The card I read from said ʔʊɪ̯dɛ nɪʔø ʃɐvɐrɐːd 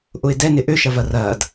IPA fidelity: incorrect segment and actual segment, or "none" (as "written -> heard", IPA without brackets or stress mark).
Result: none